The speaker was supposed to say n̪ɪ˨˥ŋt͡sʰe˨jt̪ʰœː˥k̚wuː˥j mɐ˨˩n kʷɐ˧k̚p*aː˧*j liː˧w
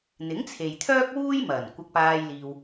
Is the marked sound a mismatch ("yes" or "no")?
no